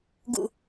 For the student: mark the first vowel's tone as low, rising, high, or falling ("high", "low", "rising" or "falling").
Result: low